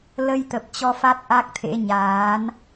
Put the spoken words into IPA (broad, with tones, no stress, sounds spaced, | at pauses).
l ə˧ j t̪ ə˨˩ p̚ t͡ɕ ɔ˧ f a˦˥ t̚ ʔ a˦˥ k̚ t̪ʰ ḛ˧˥ ɲ aː˨˦ n